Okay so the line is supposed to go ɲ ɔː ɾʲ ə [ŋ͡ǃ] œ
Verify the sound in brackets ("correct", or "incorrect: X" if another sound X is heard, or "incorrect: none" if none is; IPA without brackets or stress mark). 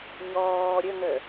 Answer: incorrect: ŋ